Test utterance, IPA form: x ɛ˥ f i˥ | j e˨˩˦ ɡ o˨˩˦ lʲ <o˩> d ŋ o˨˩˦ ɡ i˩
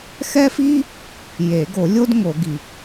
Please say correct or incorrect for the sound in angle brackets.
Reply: incorrect